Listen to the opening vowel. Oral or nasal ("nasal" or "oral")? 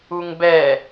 oral